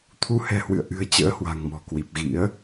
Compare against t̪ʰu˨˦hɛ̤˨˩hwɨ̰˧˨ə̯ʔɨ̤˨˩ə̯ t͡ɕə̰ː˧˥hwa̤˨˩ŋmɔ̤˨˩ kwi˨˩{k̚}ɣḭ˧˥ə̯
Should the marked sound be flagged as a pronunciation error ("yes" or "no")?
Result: yes